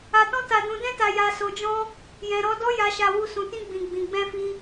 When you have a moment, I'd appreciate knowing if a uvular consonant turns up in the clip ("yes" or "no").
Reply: no